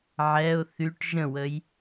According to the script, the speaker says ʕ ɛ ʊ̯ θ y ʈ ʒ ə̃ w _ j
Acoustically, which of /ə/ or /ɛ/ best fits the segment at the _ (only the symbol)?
ə